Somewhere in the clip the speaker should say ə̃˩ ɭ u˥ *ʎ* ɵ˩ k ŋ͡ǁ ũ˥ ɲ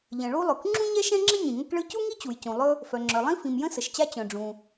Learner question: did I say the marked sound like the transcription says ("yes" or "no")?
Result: no